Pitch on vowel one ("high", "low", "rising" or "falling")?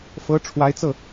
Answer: rising